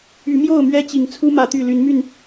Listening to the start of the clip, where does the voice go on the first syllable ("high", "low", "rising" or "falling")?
rising